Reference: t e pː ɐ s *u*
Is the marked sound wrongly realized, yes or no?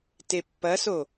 yes